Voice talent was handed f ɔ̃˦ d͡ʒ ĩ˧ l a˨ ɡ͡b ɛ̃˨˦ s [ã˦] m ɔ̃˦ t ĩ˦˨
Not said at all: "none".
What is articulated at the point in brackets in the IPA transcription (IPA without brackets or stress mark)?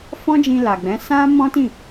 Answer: ã˦